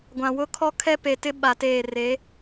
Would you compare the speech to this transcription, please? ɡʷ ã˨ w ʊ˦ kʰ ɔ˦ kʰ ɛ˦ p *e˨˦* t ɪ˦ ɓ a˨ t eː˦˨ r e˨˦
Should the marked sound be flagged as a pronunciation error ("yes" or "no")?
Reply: yes